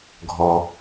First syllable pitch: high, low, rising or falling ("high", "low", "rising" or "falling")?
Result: low